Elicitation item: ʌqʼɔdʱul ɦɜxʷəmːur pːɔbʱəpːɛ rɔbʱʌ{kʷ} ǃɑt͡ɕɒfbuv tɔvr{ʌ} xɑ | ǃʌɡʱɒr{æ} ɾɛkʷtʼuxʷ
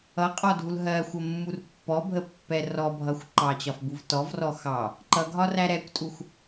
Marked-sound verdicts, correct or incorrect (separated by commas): incorrect, incorrect, correct